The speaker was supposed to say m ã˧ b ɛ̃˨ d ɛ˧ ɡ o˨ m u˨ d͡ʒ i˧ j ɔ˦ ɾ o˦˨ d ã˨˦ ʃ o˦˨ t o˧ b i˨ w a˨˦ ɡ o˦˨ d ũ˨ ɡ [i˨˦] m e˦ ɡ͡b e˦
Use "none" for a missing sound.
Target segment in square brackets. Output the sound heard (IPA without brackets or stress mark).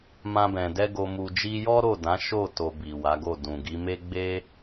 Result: i˨˦